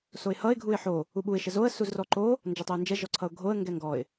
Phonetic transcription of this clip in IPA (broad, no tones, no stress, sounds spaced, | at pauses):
s o ɪ̯ h ʌ ɪ̯ ɡʱ u ɪ̯ ħ o | u ɓ u ɪ̯ ʃ ə z o ə̯ s u z r ɔ ǃ o | n d͡ʒ ʌ tˤ ə ɪ̯ n d͡ʒ ɛ ʒ ɔ ǀʰ ʌ ʊ̯ ɡʱ o ə̯ ŋ ɡ ɛ ŋ ɡ ɔ ɪ̯